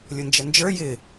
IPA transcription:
lʲʊnd͡ʒənd͡ʒə˞ jɪ

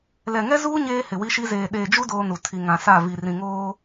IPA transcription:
lɛ˨ŋɛ˦zuː˦ ɲeː˦hɪ˨wi˦ʃi˦ zeː˨ ɗeː˨d͡ʒu˦ doː˦nu˨ tʰi˨ŋã˨sa˦˨vi˨ rĩ˨ŋoː˦

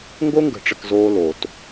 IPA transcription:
ŋɡo˦ŋɡə̤˨ʈ͡ʂə˨k zoː˦loː˨t

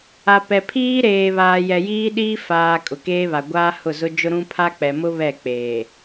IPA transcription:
a˨pɛ˨ pʰiː˦ɾeː˨ βaː˨jɛ˨jiː˦ɗiː˦ faː˨ kʼʊ˨keː˦βa˨ ɡʷaː˦hʊ˦˨zʊ˦ d͡ʒʊ˦ɾũ˦ pʰa˦k͡pɛ˨mʊ˦ βɛ˦˨k͡peː˨

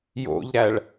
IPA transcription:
jo̰ʎɾæɭ

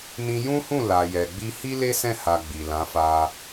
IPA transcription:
nĩ˧jũ˦hũ˦˨ la˨jɛ˨ɡ͡bi˧hi˦ le˦sɛ̃˦˨ ha˧ ɡ͡bi˨lã˨˦fa˦

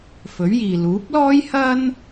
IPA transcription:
fɵ˨˥ɥjiː˨ luː˨˥p̚lɔː˥j hɐ˥n

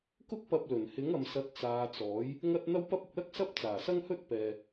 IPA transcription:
kʊ˥k̚pɐ˧p̚lɵ˨˩n hɪ˨˥ŋɐ˨msɐ˨˥t̚ t͡saː˨˧t͡sɔː˨˥j | ŋɐ˥t̚ n̪ɐ˥wpɐ˥p̚ ʊ˨k̚lɐ˥k̚ sɐ˥p̚t͡saː˨˩sɐ˥ŋhɵ˥t̚ pɛː˨

